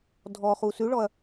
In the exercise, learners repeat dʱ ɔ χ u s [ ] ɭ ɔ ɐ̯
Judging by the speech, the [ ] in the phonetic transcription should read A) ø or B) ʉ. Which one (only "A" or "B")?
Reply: B